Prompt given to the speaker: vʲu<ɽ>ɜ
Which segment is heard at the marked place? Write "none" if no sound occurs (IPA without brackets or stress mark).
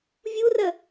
r